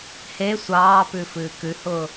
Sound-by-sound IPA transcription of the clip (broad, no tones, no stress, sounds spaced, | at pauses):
h e sʷ ɑː p ʉ f ɨː k ʉ h ʊː